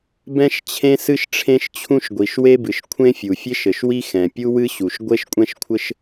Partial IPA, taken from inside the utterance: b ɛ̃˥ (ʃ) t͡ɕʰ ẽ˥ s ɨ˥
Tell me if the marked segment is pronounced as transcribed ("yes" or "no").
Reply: yes